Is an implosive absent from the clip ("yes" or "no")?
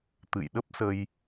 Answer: no